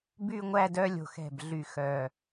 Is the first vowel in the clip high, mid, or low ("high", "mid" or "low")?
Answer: high